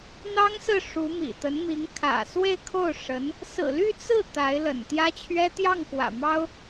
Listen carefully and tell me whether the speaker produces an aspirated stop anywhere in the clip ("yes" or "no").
yes